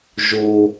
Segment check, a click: absent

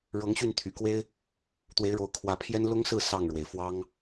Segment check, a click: absent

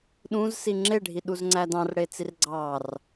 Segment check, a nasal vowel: present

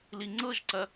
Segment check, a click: present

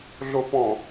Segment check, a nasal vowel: present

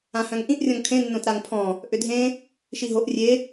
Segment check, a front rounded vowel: present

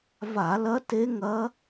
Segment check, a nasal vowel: absent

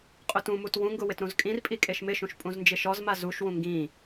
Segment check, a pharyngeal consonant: absent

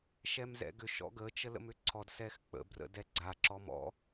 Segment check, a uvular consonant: absent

